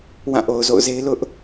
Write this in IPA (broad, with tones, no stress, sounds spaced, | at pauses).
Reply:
w ã˦˨ ʔ o˨ ʊ̯ z o̰˦˨ ʊ̯ z e˦ ɪ̯ l ʊ˦ ʔ